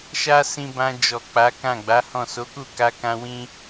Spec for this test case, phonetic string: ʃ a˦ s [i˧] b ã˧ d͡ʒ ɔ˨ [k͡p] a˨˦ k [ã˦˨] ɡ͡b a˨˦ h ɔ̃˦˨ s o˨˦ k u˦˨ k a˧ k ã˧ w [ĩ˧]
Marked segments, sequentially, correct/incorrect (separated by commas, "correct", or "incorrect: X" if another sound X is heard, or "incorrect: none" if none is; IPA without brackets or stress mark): incorrect: ĩ˧, correct, correct, incorrect: ĩ˦